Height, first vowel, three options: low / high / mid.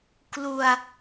high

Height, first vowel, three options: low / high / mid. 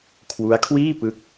high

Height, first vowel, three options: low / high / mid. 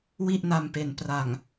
high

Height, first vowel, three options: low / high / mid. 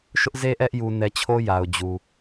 high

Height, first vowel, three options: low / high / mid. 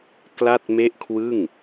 low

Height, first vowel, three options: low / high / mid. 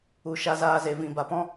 high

